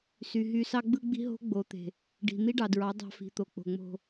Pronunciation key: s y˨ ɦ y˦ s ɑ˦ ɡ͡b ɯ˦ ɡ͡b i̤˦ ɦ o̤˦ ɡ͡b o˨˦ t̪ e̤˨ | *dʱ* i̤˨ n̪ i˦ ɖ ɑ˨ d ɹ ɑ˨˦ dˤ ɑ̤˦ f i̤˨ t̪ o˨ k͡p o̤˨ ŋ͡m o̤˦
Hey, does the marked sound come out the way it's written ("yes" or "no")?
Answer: no